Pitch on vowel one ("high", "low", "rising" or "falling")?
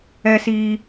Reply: low